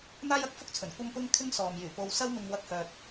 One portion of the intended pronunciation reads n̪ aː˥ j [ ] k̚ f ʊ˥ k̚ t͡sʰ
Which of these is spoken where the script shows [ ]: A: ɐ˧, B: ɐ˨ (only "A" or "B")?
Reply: A